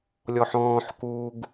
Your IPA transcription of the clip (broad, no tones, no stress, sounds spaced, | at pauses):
lʲ ɔ ħ ɔ̃ː ħ k uː ɡ